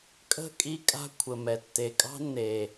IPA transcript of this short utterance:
kʼə̤˦˨ kʼi˦kʼa̤˦ kʷʰə˨mɛ˨ tːe˨kʼɑ̤˦nːe˨

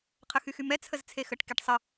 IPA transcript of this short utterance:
qʰəxyxymɛ t͡sʰəzt͡sʰexəʈ keʈsˤə

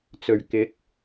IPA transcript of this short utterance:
t͡sɵ˨˩ɥkɪ˨˥k̚

